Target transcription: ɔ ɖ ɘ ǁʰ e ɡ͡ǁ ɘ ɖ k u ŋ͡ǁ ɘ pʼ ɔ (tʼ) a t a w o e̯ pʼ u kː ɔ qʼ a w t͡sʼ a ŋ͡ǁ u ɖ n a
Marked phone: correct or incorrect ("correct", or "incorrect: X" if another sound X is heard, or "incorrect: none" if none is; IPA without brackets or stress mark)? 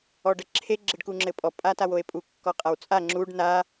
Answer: incorrect: pʼ